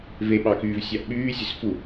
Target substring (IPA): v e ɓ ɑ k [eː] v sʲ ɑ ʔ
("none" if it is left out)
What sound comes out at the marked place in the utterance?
yː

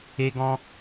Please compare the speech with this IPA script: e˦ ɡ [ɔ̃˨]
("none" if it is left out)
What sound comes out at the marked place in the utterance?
ɔ̃˦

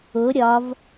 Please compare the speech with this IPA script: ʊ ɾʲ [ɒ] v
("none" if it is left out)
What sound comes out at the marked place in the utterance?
ɒ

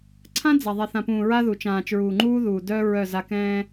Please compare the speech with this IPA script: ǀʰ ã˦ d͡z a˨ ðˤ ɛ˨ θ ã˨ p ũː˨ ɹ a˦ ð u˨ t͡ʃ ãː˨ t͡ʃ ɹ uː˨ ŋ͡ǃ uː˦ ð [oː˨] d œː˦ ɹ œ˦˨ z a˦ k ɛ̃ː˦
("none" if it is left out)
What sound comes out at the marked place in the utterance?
uː˨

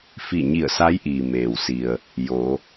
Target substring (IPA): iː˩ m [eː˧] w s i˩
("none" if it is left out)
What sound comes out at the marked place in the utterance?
eː˩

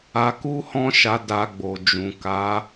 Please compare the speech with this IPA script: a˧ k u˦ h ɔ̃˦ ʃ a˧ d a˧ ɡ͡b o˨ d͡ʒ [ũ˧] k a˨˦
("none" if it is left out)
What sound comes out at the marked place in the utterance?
ũ˨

